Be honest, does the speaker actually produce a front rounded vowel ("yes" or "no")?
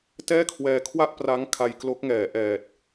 no